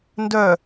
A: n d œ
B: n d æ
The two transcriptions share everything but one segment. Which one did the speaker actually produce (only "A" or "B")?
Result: A